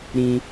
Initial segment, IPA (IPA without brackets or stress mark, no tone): ɾ